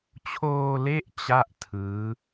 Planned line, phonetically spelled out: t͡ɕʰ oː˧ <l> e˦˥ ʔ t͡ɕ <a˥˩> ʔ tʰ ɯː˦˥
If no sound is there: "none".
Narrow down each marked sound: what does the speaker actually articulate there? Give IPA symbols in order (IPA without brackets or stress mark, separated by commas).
l, a˥˩